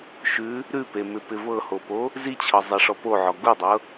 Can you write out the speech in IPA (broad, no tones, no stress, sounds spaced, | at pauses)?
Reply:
ʃ ʉ | ɾ ʉ p e m ɪ p ɪ v ɤ h o p o | z i t͡ɕʰ ɤ zˤ e ʂ ɔ p o ʕ ɔ ɡ u dˤ ɤ